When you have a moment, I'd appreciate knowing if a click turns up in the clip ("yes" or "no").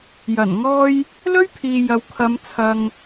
no